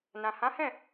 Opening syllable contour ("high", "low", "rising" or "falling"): low